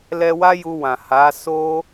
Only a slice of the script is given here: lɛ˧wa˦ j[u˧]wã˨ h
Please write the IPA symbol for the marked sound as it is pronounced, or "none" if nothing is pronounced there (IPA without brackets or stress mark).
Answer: u˧